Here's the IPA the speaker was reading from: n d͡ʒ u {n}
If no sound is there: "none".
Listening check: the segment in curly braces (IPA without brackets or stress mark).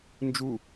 none